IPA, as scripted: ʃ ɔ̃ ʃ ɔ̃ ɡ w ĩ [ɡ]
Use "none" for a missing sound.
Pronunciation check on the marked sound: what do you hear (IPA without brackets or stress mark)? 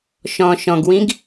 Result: ɡ